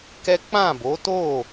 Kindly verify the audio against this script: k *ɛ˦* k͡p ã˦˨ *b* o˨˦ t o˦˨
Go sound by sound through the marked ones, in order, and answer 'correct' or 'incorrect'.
correct, correct

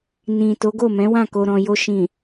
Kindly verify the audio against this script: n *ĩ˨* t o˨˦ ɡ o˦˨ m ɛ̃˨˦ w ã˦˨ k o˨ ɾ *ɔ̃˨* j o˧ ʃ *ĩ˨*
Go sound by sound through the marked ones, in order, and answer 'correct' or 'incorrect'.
correct, correct, correct

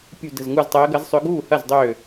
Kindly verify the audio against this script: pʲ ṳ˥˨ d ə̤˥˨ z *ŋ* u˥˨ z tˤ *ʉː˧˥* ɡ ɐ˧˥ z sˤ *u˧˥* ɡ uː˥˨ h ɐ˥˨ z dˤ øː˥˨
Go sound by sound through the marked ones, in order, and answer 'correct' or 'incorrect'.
correct, incorrect: əː˧˥, incorrect: ø˧˥

